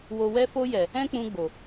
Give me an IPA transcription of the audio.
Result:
w o˨ w ɛ˧ f o˧ j ɛ˨ | ɛ̃˦ k͡p ũ˧ ɡ͡b o˨

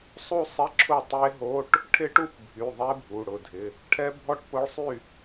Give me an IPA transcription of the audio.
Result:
sˤ u˥˨ sˤ ɪ˧˥˧ ǁʰ ʊ˥˨ tˤ e˦˥ ɦ o˧˥˧ ʈ | ʈʰ ɪ˦˥ ʈ u˥˨ p bʱ y˩˧˩ ðˤ e˦˥ bʱ u˩˧˩ ɽ ʊ˩˧˩ dʱ ɪ˩˧˩ | ʈʰ ɛ˦˥ bʱ ɔ˥˨ ʈ p ʊ˦˥ ɭ sˤ y˥˨

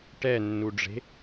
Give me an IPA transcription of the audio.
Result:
ʈ ɛ nː u ɖ͡ʐ e̤

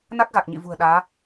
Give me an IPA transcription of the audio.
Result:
n a˦˥ k̚ ɣ a˨˩ k̚ ɲ ḭ˧˨ v ṳ˨˩ ə̯ ɗ aː˨˦

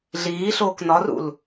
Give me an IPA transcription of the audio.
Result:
ɮ iː ɬ oː k n ɒ r ṵ l

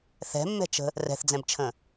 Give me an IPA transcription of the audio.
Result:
θ ɛ̤ mː ɛ̤ t͡ʃ ə̤ | r ɛ̤ θ d͡z ɛ̃ b t͡ʃʰ ə̃

